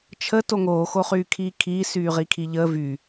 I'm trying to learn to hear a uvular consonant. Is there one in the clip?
yes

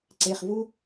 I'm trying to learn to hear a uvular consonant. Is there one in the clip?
yes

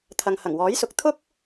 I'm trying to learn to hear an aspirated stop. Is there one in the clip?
yes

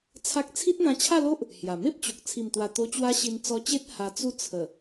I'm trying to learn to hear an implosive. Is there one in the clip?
no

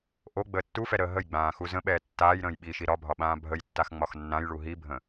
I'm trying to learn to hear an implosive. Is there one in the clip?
yes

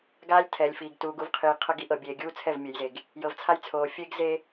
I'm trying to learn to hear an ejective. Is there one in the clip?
no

